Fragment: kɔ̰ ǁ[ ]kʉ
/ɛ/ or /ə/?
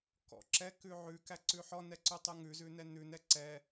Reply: ɛ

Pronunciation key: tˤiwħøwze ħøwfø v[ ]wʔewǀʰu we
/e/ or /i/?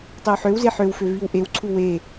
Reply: i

